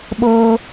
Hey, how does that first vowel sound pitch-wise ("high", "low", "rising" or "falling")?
high